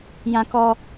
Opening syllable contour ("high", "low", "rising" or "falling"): high